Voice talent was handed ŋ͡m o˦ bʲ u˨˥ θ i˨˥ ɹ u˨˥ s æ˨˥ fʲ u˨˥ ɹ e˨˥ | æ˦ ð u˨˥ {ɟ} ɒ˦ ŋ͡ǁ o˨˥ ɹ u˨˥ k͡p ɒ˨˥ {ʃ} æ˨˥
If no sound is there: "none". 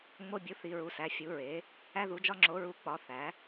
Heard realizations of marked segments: d͡ʒ, θ

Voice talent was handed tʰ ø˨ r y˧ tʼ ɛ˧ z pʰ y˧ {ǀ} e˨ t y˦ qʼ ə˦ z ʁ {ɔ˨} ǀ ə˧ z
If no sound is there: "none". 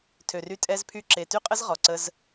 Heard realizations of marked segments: ǁ, ɔ˨

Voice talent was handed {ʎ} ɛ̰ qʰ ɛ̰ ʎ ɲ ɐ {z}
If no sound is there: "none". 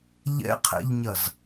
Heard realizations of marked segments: ʎ, z

